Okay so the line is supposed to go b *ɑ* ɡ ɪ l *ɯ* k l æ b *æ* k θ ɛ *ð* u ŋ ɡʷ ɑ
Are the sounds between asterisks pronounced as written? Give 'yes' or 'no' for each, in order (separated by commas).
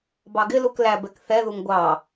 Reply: yes, no, no, yes